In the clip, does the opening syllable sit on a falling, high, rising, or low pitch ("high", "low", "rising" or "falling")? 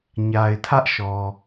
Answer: low